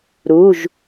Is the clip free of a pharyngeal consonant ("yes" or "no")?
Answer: yes